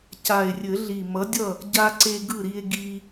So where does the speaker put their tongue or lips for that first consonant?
palate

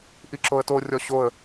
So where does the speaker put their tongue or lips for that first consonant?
throat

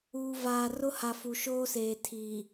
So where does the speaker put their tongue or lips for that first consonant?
lips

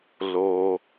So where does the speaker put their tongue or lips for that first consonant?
tongue tip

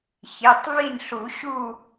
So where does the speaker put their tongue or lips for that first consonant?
palate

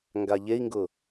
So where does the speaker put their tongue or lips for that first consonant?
velum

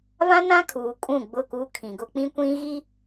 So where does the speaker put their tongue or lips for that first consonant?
lips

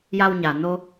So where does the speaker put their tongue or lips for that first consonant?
palate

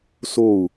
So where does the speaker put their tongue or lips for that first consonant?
tongue tip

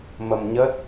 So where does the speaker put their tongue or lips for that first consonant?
lips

